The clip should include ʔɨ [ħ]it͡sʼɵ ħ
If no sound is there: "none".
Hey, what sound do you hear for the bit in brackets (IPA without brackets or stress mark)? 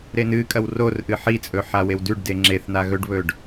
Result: ħ